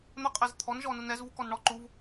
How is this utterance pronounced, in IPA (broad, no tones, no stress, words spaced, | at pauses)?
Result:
n̪əqʼɛz t̪ʰɔnʒɔnun ɛzvukɔn ɳɔ ǃuv